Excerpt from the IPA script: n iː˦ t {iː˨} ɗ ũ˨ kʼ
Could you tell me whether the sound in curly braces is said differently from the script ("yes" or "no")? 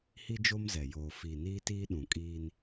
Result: yes